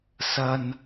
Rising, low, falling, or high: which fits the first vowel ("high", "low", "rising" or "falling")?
low